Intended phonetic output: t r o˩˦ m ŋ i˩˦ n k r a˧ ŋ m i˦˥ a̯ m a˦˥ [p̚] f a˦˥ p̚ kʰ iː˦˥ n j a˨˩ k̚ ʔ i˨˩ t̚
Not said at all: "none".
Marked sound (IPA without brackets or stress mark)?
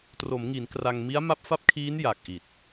p̚